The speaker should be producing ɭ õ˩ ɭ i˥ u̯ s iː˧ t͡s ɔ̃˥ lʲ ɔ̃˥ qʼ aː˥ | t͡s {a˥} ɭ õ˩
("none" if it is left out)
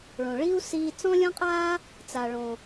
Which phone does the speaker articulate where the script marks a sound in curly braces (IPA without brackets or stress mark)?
a˩